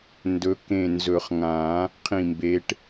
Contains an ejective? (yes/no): no